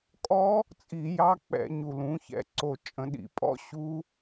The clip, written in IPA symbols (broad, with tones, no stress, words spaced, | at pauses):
kʼɔ˦˥ | t͡sʼi˧˩˧jɑ˦˥k͡pɛ̰˧˩˧ ɲu˨˩lũ˩˧çɛ̰˩˧ ǀo˨˩t͡ʃʼə̃˧˩˧ɗḭ˨˩pʼɔ̰˦˥ ɕu˦˥